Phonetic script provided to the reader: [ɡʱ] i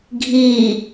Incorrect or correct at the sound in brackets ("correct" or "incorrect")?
correct